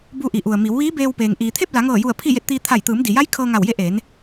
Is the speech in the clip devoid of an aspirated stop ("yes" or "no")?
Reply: no